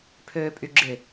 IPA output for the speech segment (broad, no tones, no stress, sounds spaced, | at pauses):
pʰ øː pʼ y ɡ͡ǁ ɪ